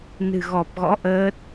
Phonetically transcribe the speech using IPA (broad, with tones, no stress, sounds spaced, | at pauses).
n ɨ̤˨˩ ɣ ɔ˨˩ p̚ ɣ ɔ̰˧˥ ʔ əː˦˥ t̚